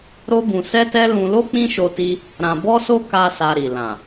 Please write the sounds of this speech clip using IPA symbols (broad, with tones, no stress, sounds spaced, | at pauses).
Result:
ɾ o˦ b ũ˧ s ɛ˦ t ɛ˦ l ũ˧ l o˦ k͡p ĩ˦ ʃ o˧ t i˧ | ɾ ã˧ b ɔ˦ s o˦ k a˦ s a˧ ɾ i˨ l ã˨